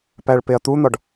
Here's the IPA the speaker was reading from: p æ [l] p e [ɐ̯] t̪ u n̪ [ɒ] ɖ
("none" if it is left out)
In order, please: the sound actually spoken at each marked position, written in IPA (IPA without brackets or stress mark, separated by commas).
ɭ, ɐ̯, ɒ